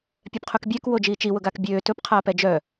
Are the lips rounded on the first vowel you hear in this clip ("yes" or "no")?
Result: yes